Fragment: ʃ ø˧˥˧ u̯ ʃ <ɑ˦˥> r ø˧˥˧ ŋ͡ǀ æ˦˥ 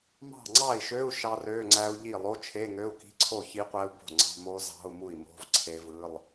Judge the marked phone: correct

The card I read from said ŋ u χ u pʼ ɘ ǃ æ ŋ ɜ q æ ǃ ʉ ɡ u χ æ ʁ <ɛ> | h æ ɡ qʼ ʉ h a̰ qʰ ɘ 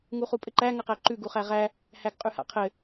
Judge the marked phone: incorrect: æ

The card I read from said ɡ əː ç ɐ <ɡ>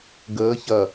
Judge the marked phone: incorrect: none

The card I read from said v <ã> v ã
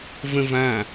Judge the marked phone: incorrect: ə̃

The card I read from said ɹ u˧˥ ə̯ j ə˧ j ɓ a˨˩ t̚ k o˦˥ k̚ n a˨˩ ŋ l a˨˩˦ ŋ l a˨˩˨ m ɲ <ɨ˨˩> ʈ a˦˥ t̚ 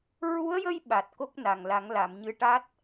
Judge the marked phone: incorrect: ɨ˧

